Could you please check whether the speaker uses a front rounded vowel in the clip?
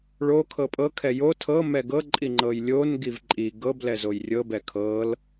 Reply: no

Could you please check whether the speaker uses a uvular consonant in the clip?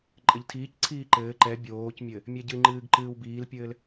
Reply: no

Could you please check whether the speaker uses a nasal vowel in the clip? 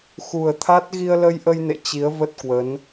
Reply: no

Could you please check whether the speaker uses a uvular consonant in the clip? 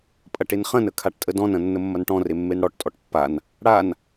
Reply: yes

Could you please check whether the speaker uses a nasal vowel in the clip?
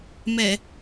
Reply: no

